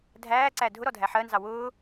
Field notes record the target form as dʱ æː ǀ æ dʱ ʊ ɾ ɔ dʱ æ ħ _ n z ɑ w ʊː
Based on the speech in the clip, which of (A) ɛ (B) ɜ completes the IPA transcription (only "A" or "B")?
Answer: B